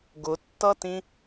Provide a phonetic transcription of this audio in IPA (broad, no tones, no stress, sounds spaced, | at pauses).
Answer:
ɡ ʊ tː ʌ t ĩ